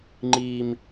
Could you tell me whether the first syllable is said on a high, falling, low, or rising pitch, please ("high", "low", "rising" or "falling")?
high